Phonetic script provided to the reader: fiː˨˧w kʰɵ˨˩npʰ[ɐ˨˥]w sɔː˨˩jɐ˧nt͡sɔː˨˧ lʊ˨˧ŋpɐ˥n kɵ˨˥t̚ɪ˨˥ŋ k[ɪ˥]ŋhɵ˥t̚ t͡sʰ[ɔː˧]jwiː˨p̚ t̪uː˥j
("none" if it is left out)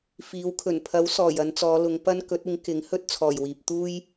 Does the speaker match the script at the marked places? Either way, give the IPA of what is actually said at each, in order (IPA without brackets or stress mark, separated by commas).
ɐ˨˥, ɪ˨˥, ɔː˨˩